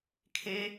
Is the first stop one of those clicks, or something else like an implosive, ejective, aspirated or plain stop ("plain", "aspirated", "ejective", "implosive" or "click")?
aspirated